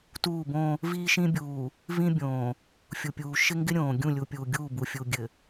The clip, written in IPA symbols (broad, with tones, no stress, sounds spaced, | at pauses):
t uː˦˨ b õː˦ | v iː˦ ʃ ĩ˦ bʲ uː˨ | v ĩ˦ bʲ õː˨ | fʲ u˨ pʲ uː˨ ʃ ɪ˦ ŋ ɡ ɪ˦ ɾʲ õː˨ ɡʲ ũ˦˨ lʲ u˨ pʲ u˨ ɡʲ uː˦˨ b u˨ fʲ u˨ ɡʲ ɘ˨